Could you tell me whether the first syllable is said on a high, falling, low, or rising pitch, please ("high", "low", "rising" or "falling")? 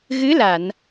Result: rising